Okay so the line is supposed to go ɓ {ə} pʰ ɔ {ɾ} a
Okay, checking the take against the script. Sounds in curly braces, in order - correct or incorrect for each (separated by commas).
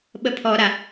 correct, correct